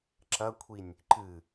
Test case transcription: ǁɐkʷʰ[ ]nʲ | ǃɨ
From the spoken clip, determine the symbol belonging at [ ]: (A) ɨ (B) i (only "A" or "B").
B